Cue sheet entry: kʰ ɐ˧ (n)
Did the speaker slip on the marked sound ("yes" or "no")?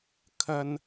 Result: no